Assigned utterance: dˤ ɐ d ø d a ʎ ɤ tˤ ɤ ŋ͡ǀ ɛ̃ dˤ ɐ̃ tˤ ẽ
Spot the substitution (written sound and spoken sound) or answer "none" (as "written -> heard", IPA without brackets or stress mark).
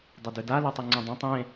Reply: ʎ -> l